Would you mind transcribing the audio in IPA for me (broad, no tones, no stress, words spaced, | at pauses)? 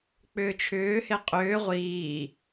k͡pʏːt͡ʃʰʏːhe qʼʏː ʁʷiː